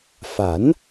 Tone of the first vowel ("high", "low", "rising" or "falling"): rising